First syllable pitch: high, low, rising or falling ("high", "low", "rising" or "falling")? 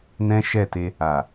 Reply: high